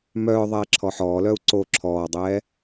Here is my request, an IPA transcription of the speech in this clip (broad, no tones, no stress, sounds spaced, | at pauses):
m œː ðˤ ɛː ǁʰ ɔ ħ ɔː l œ u̯ ǀ o ǁʰ ɔː dˤ ɛː